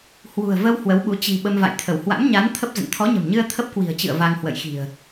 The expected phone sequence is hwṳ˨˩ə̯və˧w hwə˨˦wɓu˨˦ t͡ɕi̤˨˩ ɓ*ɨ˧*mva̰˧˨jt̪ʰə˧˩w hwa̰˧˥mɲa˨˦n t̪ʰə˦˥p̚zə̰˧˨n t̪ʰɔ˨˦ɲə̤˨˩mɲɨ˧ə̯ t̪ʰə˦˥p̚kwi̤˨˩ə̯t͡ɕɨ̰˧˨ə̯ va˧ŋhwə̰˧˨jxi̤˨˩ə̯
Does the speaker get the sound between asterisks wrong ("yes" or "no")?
yes